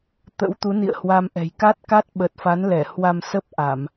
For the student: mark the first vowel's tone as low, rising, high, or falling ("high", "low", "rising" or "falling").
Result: rising